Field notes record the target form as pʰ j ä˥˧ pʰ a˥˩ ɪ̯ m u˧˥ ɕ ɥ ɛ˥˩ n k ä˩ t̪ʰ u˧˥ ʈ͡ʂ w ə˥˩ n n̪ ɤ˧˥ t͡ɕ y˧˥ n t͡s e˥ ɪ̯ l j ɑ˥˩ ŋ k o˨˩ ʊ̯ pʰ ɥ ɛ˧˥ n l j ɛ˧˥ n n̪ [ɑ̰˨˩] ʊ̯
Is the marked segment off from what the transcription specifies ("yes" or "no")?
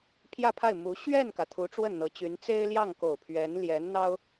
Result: yes